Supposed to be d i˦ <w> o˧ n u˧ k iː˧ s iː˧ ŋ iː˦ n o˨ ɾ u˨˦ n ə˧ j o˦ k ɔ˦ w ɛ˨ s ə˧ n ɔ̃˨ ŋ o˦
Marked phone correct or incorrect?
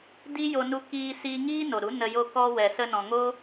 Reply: incorrect